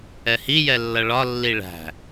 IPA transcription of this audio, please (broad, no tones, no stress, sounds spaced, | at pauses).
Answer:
ɛ h i j ɛ lː ʌ ɭ ɒ lː i ɭ æ̤